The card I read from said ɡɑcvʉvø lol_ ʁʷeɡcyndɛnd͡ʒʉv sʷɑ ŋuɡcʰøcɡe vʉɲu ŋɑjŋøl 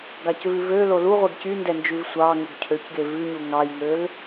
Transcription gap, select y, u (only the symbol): u